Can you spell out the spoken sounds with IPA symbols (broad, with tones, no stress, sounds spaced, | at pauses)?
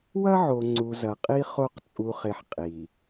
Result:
w ɐ˦ ʕ o˨ ŋ͡ǀ u˨ z ɐ˨ qʼ i˦ χ o˦˨ q t͡sʼ u˨ χ e˨ ħ qʼ i˨